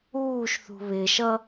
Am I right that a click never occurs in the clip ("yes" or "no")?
yes